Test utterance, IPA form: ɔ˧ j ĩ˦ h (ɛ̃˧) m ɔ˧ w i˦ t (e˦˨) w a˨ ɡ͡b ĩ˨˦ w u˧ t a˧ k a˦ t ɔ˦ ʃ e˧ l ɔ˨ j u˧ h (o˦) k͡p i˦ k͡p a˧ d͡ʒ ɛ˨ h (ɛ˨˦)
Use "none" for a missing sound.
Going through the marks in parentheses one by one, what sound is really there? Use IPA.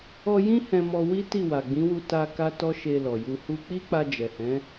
ɛ̃˧, i˦˨, u˦, ɛ̃˨˦

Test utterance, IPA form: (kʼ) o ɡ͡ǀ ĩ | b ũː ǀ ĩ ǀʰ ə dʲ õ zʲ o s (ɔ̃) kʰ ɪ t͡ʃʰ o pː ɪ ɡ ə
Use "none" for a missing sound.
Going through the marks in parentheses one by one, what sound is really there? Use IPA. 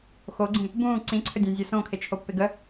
x, õ

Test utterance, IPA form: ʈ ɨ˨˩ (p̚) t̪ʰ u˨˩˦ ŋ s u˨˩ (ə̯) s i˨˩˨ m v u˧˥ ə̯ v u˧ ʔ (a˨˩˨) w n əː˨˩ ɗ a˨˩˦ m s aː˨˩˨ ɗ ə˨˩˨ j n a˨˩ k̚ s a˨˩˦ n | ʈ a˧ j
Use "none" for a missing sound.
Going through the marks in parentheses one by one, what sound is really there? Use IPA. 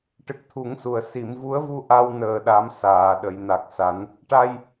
k̚, ə̯, a˧

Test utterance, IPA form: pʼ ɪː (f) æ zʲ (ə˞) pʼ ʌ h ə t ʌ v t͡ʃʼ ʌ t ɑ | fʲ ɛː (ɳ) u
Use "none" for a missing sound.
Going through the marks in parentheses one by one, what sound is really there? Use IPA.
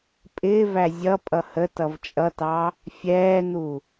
v, ʌ, n̪

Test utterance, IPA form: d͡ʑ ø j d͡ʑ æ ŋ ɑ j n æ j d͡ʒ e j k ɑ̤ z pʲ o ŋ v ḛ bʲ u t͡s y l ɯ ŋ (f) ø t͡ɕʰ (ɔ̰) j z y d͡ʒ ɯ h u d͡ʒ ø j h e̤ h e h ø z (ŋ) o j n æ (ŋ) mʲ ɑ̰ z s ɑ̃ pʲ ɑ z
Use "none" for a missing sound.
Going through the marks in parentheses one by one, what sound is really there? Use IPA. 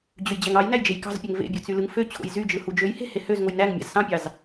f, o̰, ŋ, ŋ

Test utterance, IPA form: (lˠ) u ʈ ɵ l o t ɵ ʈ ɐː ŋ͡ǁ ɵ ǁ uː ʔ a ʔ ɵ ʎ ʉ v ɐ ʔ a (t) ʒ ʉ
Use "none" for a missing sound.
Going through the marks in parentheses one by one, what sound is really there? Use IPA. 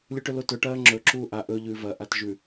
lʲ, t

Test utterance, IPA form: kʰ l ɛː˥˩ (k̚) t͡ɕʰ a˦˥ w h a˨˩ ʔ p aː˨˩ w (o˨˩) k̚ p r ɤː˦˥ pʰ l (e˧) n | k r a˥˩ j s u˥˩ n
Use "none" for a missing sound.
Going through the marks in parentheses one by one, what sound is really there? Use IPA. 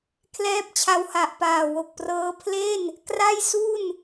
p̚, o˨˩, e˥˩

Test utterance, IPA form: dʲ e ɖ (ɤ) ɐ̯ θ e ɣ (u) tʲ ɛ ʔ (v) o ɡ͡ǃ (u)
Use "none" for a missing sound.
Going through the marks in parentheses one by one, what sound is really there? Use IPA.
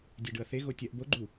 ɯ, o, b, u

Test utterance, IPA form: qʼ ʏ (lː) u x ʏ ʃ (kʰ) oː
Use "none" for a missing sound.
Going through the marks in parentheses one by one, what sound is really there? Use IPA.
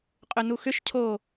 n, cʰ

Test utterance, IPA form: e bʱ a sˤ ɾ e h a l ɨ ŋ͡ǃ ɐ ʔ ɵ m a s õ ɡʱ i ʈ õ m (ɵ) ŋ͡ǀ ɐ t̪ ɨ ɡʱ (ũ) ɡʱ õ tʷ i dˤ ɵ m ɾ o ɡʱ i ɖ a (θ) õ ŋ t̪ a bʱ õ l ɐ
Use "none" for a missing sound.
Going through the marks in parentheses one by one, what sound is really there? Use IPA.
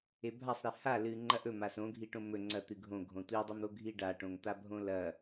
ɵ, õ, ʈ

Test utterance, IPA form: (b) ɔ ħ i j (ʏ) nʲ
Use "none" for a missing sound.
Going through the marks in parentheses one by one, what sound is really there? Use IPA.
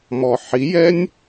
m, ɛ

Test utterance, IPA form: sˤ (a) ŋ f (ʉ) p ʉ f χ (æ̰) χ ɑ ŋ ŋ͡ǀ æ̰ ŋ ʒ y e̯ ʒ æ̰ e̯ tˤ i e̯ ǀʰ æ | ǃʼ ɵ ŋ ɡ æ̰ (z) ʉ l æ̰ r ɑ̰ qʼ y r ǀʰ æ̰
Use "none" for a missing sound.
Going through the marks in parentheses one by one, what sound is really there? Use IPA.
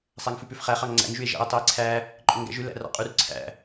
æ, ʉ, æ, ʒ

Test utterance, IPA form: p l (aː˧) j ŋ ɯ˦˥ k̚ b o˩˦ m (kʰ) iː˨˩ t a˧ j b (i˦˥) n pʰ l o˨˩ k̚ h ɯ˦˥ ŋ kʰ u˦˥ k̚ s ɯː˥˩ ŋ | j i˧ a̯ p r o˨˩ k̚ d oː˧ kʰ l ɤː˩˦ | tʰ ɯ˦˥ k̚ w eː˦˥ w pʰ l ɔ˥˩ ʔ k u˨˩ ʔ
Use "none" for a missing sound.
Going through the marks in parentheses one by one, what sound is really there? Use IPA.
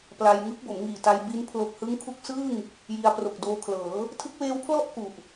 a˧, ŋ, i˦˥

